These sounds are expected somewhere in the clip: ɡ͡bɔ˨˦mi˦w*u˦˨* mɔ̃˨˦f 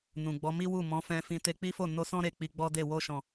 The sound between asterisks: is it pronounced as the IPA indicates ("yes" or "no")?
yes